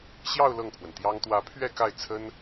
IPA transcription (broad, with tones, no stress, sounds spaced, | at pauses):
ɕ j ɑ˥˧ ʊ̯ l ɤ˥˩ ŋ pʰ w ə˩ n t̪ j ɑ˥ ŋ t̪ w ä˧˥ pʰ ɥ ɛ˥˧ k a˥˩ ɪ̯ t͡sʰ ə˥ n